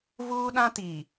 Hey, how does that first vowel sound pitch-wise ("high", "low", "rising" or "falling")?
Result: high